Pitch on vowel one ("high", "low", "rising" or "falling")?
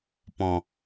low